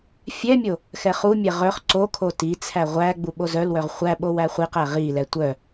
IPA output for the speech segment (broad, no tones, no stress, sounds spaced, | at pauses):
fʲ ɛ mʲ o | x ɛ χ u mʲ ɛ ʁ œ χ ǀ o kʰ o t i t͡sʰ æ ʁʷ æ ɡ͡b u ɓ o z œ l w œ ʁ χʷ æ ɓ o w æ χʷ i q æ ʁ i l ɛ tʷ œ